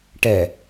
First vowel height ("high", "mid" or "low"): mid